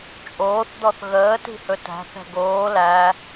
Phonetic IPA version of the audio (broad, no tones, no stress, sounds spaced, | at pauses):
t͡ʃʼ oː θ d̪ ɔ θ ɣ əː t i̤ h ɵ t æ̤ θ ɛ̤ ɡ oː l æ